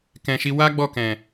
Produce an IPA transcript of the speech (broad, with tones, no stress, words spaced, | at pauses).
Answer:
kɛ̃˨ʃi˧ wa˦ ɡ͡bɔ˦˨kɛ̃˨